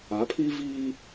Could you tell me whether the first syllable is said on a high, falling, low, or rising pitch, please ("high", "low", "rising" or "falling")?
rising